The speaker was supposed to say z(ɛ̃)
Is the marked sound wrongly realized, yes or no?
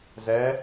yes